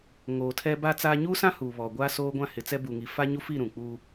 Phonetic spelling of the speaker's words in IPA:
ŋ oː˨ tʰ ɛ˦ b a˦ t͡s aː˦ ɲ u˦ s ã˦ h uː˨ β ɔ˨ ɡʷ aː˦ s oː˦ ɡʷ ã˦ h ɪ˨ t͡s ɛ˦ b u˨ ŋ i˨ f a˦ ɲ u˦ f i˦˨ ɾ ũ˨ k͡p uː˦

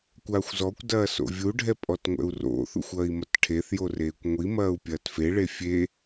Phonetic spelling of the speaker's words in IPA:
kʷ aː xʷ z ɔ kʷ d ɐː s o̰ vʲ u ɖʱ ɛ pʼ ɔ t ŋʷ ɛ̰ u̯ r o̰ θ ṵ xʷ ɐː i̯ m ɐ t ʈʰ e θ j o r eː kʷ ŋʷ i m ɐː u̯ pʲ ɐː t f e ɭ e fʲ e

